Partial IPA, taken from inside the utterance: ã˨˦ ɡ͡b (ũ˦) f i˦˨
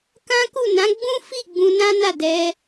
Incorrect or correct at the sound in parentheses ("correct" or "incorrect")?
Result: correct